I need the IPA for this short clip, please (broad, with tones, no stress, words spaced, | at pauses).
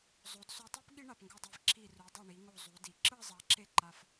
zˤo˩˧dso˧tˤɯ˥p ɠi˥ɳa˧˩pŋɡo˧dˤe˧˩v ǁi˧˩ru˩˧ dˤi˧˩ɳi˩˧ŋo˧˩ zˤu˩˧di˩˧ǁɯ˥˧ zˤa˧ǁe˥˧ǃa˧f